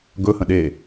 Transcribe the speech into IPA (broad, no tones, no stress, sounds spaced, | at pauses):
ɡ ɵ h ə̃ ɗ e